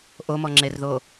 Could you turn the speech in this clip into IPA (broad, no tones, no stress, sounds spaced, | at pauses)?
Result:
ʔ o m ɔ ŋ͡ǁ e r ð o